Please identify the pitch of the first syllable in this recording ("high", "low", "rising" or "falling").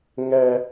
low